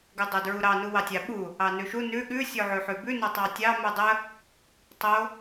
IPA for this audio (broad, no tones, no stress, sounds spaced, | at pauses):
ɡ ʉ dˤ o d ɹ u ɾ ɑ n u w ɑ tʲ ɑ ɓ u | ɑ n ʉ ʃ u n ʉ ɠ ʉ sʲ o ʕ ʉ ħ ʉ b ʉ n o tˤ ɑ tʲ ɑ m u dˤ ə | tˤ o